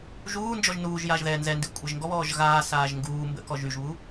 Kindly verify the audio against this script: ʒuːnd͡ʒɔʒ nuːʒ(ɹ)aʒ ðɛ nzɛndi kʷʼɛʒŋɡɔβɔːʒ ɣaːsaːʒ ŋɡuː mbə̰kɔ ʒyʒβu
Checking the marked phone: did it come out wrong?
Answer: yes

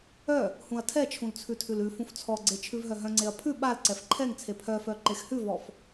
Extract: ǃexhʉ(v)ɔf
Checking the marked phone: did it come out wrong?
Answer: no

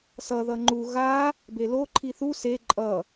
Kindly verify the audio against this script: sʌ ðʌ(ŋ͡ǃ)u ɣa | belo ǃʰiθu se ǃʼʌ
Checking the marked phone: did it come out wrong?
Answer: no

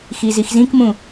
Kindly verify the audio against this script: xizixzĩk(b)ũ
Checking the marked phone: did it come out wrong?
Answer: yes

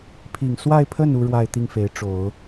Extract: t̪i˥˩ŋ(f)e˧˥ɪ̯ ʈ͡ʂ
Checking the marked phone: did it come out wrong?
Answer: no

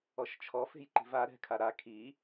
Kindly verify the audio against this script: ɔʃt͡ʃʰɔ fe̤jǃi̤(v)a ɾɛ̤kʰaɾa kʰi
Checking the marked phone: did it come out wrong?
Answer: no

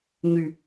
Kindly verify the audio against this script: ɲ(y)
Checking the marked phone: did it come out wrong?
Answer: no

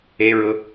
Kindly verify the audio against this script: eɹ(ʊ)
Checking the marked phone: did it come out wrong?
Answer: no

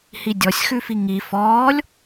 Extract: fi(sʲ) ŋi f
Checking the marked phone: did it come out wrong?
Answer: yes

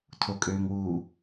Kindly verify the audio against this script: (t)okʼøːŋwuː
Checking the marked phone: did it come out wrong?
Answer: yes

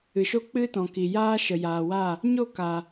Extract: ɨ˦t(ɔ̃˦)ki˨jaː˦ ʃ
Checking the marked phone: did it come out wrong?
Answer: yes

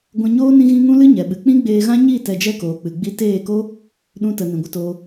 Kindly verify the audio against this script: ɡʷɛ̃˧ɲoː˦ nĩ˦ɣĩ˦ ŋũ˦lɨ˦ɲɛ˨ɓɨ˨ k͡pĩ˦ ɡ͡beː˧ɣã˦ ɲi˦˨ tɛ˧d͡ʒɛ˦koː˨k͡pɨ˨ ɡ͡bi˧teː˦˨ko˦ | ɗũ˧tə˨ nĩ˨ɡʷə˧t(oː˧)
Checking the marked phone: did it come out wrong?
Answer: no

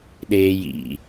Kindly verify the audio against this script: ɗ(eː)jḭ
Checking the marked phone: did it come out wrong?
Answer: no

